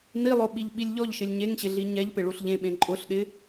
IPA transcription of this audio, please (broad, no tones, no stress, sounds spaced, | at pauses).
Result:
n i lˠ o ɓ i ʎ ɓ i lʲ ʎ ɔ ʎ ʃ ɪ lʲ ɲ e ŋ ɕ ɪ ɮ i ɲ ɛ ʎ p ɪ ɭ u ɬ ʎ ẽ ɓ ẽ ǃʼ ʊ ɬ ɗ ɪ